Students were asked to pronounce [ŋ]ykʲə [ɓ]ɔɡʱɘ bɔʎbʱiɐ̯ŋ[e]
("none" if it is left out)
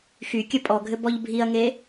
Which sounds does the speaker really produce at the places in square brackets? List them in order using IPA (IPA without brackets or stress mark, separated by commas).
x, pʼ, e